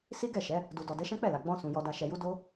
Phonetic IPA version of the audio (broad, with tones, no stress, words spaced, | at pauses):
si˦ɡɛ˦˨ʃɛ˨˦ | du˨dɔ˨ dɛ˨˦ʃɛ̃˦ k͡pɛ˦˨la˨ ɡ͡bɔ̃˧sũ˨ jɔ˧da˧ʃɛ˧ju˦ do˦